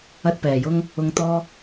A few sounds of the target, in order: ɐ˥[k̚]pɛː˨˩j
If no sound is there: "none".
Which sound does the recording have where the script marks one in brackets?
t̚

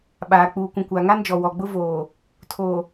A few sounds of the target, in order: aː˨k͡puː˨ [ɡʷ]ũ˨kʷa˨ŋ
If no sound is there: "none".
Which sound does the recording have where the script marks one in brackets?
kʷ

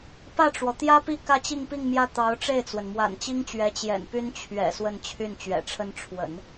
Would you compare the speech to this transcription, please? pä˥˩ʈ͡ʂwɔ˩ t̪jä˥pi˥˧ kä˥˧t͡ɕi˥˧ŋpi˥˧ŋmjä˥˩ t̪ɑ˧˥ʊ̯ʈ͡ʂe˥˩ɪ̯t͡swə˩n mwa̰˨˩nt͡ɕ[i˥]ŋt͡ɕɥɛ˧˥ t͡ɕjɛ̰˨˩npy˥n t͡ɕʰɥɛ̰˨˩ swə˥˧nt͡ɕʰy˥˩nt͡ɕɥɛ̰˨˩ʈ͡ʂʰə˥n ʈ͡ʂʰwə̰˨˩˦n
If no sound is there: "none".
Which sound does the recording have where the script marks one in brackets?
i˥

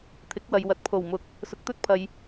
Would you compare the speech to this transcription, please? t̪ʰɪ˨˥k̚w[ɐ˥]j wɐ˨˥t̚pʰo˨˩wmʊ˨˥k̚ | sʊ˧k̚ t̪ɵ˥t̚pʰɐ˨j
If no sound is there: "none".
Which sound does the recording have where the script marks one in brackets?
ɐ˨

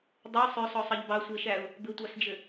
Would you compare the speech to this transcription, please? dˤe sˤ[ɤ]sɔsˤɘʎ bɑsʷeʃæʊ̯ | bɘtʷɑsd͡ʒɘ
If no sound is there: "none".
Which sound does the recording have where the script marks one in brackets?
ɵ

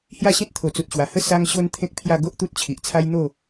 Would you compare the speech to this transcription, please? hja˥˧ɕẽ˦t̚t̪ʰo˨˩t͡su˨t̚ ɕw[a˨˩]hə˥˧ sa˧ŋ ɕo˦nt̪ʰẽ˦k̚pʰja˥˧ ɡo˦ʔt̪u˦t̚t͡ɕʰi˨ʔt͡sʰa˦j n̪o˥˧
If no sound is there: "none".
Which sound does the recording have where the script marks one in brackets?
a˨˩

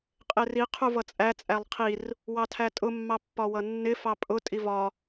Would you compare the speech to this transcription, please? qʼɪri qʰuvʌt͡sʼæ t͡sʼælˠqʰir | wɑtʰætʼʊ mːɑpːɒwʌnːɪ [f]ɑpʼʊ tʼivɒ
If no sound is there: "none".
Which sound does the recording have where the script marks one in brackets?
f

